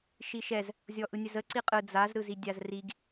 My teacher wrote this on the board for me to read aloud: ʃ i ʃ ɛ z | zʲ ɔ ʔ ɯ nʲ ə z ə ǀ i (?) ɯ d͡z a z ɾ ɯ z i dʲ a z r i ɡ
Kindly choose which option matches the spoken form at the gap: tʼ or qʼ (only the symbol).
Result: qʼ